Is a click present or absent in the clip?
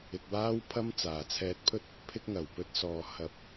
absent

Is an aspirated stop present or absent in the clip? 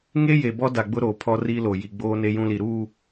present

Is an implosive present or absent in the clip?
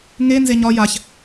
absent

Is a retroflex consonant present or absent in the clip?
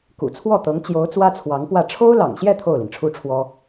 present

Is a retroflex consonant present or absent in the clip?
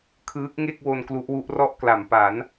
absent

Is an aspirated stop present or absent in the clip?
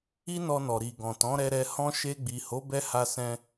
absent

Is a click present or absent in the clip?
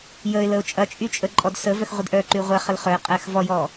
present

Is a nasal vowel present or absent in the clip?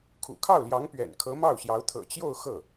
absent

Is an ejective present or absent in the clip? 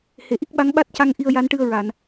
absent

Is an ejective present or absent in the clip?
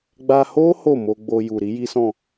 absent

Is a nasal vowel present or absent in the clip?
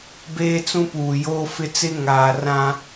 present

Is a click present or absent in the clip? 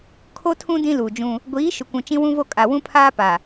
absent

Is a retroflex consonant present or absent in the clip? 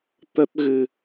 absent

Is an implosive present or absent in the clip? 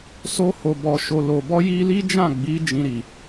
absent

